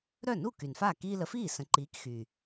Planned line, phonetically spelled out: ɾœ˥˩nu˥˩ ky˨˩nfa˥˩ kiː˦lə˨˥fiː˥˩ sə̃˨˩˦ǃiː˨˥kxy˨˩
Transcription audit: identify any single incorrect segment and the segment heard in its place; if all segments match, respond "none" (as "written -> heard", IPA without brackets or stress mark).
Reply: none